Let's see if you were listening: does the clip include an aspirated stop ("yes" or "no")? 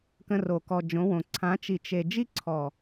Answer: yes